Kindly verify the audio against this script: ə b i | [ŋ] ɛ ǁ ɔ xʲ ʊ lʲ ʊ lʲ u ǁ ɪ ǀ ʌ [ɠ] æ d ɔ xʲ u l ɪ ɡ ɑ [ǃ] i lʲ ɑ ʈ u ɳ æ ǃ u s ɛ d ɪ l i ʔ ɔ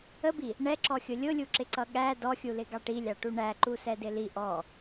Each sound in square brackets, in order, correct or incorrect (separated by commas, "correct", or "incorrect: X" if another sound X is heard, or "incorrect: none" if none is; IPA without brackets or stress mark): incorrect: ɳ, correct, incorrect: ʈ